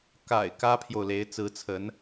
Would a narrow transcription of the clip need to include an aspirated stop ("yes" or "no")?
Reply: yes